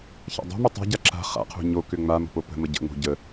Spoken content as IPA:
ç a̰ dˤ o̤ m ʏ tˤ a̤ ɟ a ǁ a̤ χ a̰ qʰ o̤ ɲ o k ʏ ŋ͡m a m ə̤ p o p ə̤ m ə ɟ ə̰ ŋ͡m o̤ ɟ ə

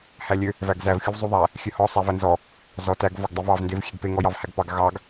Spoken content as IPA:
h æ lʲ ø | v æ ɡ z æ v xʲ u v zˤ u ðˤ æ | xʲ ø h ɔ sˤ æ v æ n z ɔ | z ɔ t æ ɡ v ɔ ɡ dˤ e v ɑ v n d e v xʲ e ɡ p e ŋ ɔ j ɑ v h æ ɡ p ɑ ɡ ɣ ɑ ɡ

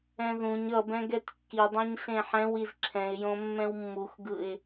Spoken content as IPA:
ɛ̃ ð ũ ɲ ʌ b ɛ̃ ɡ ɛ t kː i dˤ õ ɲ ɬ ẽ ħ ɛ̃ w i z ǁʰ ɛ̃ ɪ̯ j õ mː ɛ̃ w mː u x ɡ ɯ ɪ̯

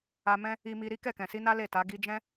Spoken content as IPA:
a˧ m ɛ̃˦ | i˧ m i˧ ɾ i˦ k ɛ˦˨ k ɛ̃˨ s i˧ n a˦ l e˦˨ t a˨˦ ɡ i˧ d͡ʒ ɛ̃˦

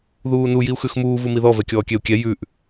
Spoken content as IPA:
ð uː n u j i u̯ x ʉ x m uː v u m i ð ɔ v ɛ kʲ ɔː kʲ ɛ u̯ kʲ ɛ j ʉ ʔ

